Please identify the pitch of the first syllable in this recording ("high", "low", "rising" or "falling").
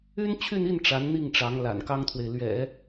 high